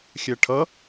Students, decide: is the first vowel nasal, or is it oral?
oral